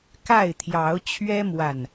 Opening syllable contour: falling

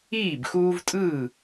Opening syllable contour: falling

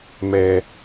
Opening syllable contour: low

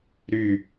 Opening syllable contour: falling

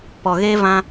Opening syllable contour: low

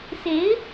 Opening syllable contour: rising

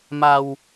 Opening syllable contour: low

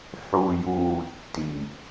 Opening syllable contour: low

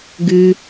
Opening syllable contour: high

